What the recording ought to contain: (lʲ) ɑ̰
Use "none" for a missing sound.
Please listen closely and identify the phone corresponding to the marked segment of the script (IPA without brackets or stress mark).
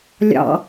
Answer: lʲ